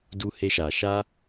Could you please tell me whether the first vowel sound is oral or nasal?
oral